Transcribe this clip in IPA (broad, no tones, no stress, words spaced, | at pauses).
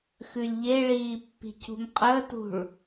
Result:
xʉlʲʎeɭiː pːi̤cṳmqʼəːtṳɭ